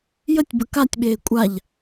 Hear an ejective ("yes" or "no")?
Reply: yes